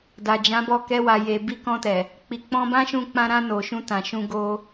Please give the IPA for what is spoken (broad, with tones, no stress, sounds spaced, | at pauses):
d a˨ d͡ʒ ã˨˦ b ɔ˦˨ k ɛ˧ w a˨ j e˨ b i˧ k ɔ̃˧ t ɛ˨ | k͡p i˨ k͡p ɔ̃˧ b ã˦ ʃ ũ˧ k͡p ã˧ ɾ ã˧ n o˨ ʃ ũ˧ t ã˨ ʃ ũ˧ ɡ o˧